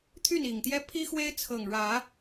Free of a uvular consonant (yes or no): yes